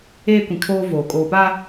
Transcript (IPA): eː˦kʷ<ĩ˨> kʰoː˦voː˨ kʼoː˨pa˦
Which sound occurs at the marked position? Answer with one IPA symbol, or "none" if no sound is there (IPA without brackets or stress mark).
ĩ˨